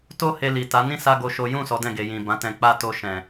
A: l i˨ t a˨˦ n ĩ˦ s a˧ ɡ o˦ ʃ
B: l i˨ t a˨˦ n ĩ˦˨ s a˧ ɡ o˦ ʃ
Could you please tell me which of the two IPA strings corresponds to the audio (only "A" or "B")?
B